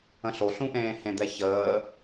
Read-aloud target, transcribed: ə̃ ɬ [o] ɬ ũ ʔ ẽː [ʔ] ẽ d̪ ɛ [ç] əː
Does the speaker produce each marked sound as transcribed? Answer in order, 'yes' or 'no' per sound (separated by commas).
yes, no, yes